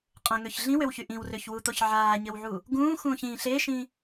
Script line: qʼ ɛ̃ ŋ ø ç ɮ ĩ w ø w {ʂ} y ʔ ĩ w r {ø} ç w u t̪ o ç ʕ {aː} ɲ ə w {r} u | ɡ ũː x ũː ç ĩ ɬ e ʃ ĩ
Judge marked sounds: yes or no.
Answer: no, yes, yes, no

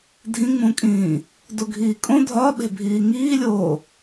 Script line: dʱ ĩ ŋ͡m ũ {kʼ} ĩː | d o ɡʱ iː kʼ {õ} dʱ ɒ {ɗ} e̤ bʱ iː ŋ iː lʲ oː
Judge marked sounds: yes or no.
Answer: yes, yes, no

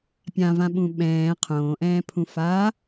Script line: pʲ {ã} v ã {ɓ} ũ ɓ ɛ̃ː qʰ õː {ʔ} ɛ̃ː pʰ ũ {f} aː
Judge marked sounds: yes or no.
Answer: yes, yes, yes, yes

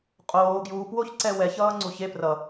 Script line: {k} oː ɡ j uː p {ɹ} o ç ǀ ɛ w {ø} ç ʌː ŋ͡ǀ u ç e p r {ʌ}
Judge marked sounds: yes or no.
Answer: no, no, no, yes

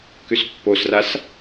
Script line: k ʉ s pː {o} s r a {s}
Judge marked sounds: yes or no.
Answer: yes, yes

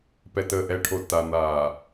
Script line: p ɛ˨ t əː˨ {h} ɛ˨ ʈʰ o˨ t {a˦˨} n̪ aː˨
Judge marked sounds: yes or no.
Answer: no, no

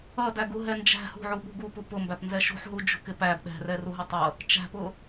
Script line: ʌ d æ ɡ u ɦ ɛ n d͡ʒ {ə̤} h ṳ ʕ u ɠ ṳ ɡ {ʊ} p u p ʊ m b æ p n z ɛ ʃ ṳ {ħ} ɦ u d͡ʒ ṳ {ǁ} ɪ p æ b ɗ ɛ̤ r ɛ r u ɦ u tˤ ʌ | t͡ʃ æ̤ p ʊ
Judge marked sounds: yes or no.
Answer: no, no, yes, no

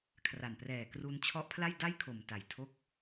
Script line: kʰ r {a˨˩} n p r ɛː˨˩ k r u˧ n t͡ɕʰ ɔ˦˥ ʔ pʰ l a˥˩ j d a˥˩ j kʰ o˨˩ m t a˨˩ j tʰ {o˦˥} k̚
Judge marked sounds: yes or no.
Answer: yes, yes

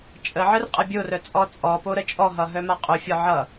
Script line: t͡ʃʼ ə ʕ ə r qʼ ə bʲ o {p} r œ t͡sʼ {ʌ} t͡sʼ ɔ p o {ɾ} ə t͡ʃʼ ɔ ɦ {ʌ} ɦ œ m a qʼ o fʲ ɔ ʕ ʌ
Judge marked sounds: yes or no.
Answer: no, no, yes, yes

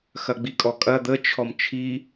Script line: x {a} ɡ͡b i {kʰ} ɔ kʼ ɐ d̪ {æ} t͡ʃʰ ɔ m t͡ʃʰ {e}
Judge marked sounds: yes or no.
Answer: no, no, no, no

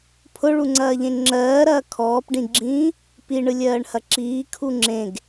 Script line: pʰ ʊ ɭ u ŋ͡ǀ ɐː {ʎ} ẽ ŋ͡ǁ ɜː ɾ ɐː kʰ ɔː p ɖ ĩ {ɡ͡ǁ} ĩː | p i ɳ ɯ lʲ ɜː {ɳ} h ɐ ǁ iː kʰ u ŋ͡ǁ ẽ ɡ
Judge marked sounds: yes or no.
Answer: yes, yes, yes

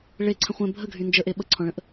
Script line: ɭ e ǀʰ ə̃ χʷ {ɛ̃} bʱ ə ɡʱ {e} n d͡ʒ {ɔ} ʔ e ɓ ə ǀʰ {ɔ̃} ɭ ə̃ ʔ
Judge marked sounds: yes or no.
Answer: yes, no, no, yes

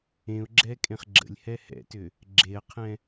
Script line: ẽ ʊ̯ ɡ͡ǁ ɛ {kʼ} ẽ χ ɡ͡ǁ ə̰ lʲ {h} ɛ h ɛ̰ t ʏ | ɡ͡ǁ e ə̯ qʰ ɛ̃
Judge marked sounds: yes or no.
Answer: yes, yes

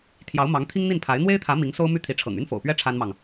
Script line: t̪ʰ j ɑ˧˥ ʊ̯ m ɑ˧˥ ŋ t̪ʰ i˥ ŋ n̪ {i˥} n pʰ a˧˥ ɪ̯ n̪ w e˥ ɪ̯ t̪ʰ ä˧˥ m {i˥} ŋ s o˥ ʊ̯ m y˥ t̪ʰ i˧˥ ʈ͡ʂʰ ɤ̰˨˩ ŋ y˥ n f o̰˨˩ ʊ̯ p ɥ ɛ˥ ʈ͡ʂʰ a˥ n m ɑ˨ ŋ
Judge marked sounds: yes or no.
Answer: no, no

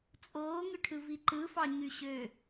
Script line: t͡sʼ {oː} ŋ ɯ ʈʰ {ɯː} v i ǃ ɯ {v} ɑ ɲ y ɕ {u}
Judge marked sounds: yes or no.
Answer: yes, no, no, no

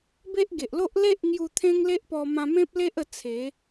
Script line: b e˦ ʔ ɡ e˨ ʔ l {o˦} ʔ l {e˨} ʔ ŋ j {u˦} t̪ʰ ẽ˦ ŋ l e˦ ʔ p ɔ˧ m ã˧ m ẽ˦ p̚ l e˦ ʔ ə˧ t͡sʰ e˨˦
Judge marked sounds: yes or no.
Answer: yes, no, no

